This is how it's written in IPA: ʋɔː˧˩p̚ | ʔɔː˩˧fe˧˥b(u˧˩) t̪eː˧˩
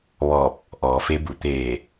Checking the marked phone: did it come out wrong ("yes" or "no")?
no